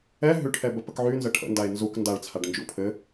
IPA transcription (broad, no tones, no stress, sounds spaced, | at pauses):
ɛ ɦ ʉ ʈʰ ɛ b ə p ə k ʕ y n z ə ʈʰ ə̰ n d a e̯ n z u k n d a ɭ t͡sʰ a ɖ n d͡ʒ ṵ pʰ ɘ